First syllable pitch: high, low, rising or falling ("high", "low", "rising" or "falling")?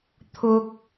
low